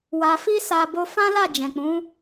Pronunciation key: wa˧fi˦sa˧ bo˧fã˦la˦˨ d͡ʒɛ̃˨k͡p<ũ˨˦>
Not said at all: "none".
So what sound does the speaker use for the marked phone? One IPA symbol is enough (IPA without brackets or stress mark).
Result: ũ˨˦